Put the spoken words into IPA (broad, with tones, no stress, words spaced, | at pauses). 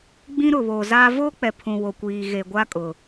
ɡ͡bĩ˦ɾʊ˨βoː˨zaː˦ voː˦k͡pɛ˨ pʰũ˨ wo˨kʷiː˨ ɣe˨ ɡʷa˦kʼʊ˨